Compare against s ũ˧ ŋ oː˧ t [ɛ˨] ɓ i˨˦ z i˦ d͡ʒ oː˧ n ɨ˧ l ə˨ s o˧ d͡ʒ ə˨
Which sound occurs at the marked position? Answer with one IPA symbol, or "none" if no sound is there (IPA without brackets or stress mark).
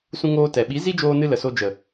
ɛ˨